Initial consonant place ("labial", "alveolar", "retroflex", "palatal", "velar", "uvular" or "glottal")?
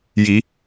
palatal